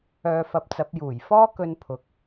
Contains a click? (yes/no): no